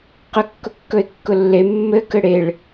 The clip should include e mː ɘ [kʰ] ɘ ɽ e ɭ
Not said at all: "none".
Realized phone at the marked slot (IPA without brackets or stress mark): k